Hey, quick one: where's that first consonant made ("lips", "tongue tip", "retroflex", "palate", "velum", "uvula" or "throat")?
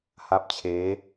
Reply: throat